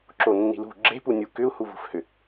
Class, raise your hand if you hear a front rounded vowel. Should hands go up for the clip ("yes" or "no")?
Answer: yes